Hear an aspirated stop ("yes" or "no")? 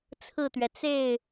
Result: yes